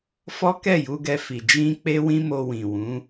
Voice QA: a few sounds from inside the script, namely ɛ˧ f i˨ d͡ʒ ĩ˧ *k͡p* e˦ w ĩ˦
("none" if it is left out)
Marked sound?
k͡p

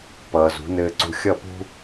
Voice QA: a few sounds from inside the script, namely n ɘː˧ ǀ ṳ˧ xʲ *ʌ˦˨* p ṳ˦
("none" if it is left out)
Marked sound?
ʌ˦˨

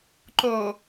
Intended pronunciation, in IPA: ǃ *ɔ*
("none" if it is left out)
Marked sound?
o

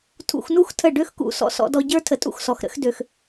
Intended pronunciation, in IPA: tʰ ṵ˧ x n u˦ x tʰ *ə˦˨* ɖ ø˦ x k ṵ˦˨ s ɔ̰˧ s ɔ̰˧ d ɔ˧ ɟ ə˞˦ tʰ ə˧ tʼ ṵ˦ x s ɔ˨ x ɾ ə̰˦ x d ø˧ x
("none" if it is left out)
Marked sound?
ə˦˨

